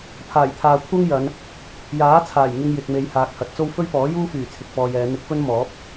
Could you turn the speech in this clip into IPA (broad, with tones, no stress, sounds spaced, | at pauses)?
pʰ aː˨˩ j t̪ʰ aː˨ kʷʰ ɐ˥ ŋ j ɐ˨˧ n | j aː˨˥ t͡sʰ aː˨˩ j ŋ ɪ˧ ŋ j ɪ˨ k̚ m e˨˧ j h aː˨ k̚ h ɐ˨˥ t̚ t͡s o˥ w f ɵ˥ ɥ p ɔː˨˥ j uː˥ f yː˨˩ t͡sʰ ɪ˨ k̚ f ɔː˨ j ɛː˨˧ n̪ ɪ˨˥ k̚ f ɵ˥ n m ɔː˨˥ p̚